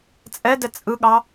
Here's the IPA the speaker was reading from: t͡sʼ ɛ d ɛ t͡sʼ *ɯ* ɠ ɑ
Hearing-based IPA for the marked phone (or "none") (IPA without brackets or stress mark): ɯ